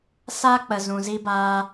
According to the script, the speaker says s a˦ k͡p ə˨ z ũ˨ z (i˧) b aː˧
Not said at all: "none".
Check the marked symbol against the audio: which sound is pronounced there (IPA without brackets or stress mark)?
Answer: i˦